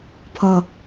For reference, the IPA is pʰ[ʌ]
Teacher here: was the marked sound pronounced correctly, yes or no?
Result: yes